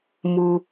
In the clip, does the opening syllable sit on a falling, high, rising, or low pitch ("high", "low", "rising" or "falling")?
low